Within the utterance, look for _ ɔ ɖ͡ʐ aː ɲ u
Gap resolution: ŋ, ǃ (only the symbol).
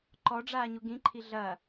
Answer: ǃ